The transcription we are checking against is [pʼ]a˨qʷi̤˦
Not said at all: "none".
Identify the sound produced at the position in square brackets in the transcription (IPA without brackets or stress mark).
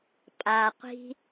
pʼ